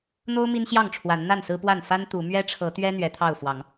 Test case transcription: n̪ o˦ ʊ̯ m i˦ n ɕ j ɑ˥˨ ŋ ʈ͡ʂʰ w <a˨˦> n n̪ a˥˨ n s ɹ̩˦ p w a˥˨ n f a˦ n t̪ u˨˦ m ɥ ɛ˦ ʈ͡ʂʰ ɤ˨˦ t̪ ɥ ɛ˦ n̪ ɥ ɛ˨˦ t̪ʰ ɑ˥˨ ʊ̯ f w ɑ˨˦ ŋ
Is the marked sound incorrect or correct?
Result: correct